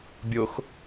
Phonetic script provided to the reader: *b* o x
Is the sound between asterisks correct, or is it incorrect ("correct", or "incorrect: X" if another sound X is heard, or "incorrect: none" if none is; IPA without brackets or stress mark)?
incorrect: bʲ